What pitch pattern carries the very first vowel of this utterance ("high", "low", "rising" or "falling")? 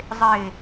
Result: low